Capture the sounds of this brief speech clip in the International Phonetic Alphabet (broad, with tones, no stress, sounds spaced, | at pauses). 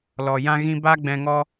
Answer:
l ɔ˨ j ã˧ ɣ ĩ˧ b a˦ ɡ͡b ɛ̃˧ ŋ ɔ˦